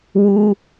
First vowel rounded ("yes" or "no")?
yes